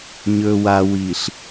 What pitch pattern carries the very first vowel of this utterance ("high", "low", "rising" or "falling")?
low